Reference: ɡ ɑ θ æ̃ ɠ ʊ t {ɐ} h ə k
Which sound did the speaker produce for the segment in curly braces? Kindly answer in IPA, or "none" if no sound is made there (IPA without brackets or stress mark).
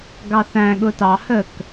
ɑ